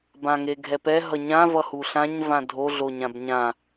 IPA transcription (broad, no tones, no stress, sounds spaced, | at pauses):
b ã ŋ e ɡʱ ɛ p ɛ ɦ ʌ ɲ ã v ʌ h u ɬ ã ɲ v ã dʱ o ɮ o ɲ ã b ɲ ã